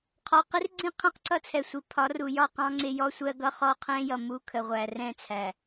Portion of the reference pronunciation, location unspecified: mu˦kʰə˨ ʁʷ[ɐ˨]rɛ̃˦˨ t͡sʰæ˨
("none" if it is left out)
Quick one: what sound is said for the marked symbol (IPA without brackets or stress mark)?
æ˨